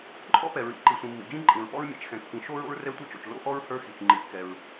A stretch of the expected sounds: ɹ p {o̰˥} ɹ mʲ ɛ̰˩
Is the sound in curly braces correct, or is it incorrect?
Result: incorrect